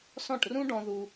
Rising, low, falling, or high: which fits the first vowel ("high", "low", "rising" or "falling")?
falling